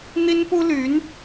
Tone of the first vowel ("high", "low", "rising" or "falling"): high